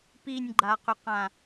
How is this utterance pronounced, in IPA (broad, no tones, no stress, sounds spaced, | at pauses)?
p i nʲ ɡ͡ǃ a q ʏ q ã